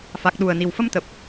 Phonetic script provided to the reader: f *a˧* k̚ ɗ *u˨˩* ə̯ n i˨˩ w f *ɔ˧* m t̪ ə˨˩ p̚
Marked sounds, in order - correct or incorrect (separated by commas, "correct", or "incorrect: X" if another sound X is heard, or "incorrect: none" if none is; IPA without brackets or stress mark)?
incorrect: a˨˩, correct, incorrect: ə˧